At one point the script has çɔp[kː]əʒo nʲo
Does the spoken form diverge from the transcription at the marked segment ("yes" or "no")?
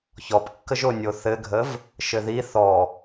no